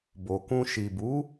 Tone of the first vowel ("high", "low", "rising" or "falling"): low